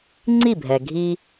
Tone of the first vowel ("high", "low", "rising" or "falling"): falling